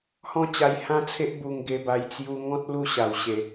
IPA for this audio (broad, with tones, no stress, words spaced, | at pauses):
hɔ̃˥˧t͡ɕa˧jhã˦t͡sʰe˦ʔ bu˧ŋɡe˧ba˧j t͡sju˧ ŋɔ̃˦t̚ lu˥˧ ɕa˨˩wɕe˨˩